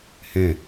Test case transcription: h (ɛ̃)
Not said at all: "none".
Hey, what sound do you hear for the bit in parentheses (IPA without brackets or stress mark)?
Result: ɛ̃